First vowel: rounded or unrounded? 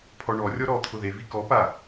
rounded